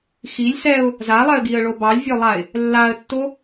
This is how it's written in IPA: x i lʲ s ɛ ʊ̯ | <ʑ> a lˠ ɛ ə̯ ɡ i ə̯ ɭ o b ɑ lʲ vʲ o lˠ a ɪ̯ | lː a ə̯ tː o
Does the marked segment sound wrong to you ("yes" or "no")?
yes